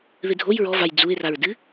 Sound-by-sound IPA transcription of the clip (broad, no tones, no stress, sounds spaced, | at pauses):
ð ɨ dʱ o j ɹ ɔ v a j d͡z u ɪ̯ r a ɹ d ɨ